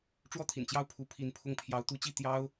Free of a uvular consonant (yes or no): yes